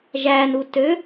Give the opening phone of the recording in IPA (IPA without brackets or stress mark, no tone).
ʒ